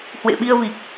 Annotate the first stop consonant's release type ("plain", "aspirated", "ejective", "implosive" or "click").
implosive